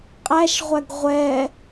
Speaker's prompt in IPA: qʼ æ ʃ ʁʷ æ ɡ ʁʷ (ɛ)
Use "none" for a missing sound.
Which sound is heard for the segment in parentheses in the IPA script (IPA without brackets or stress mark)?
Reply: ɛ